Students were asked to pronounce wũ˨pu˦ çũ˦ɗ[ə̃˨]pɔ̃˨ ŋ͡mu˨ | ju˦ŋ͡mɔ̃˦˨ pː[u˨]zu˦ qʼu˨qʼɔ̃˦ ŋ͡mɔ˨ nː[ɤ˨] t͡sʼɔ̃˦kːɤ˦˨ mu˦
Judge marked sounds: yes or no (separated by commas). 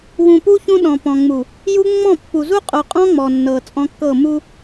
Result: no, yes, yes